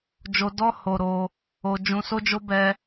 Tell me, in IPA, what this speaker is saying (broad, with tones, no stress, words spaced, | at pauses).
d͡ʒo˧dɔ˦ ho˧ɾo˧ | o˧ d͡ʒũ˧so˦d͡ʒo˦ bɛ˦